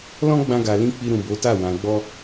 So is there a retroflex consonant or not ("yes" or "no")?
no